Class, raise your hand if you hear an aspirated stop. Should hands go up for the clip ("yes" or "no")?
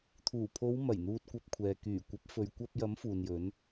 yes